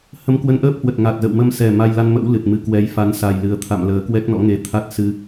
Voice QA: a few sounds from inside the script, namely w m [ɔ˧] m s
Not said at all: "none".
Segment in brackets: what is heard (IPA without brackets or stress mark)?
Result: ə˧